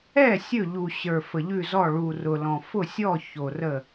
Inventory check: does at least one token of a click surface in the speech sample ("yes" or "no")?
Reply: no